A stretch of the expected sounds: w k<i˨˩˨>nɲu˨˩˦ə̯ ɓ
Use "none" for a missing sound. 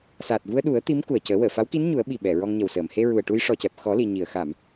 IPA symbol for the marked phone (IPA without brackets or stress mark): i˧˥